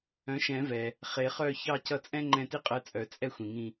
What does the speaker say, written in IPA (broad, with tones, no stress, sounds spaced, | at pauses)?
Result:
œ̃˩˥ ʃ ɛ̃˨˩˦ v ɛ˩ | χ e˨˩˦ χ œ˦˨ ç ɑ˦˨ c ʌ˦˨ t͡sʼ ɛ̃˥ ŋ͡ǃ ɛ̃˦˨ t i˥ qʼ ɜ˧˥ t͡sʼ œ˨˩˦ t͡sʼ ɛ˥ xʷ ĩ˩ ŋ ĩ˦˨